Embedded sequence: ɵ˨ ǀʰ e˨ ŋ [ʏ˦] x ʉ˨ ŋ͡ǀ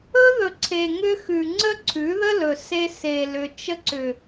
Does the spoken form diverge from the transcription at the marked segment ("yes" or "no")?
no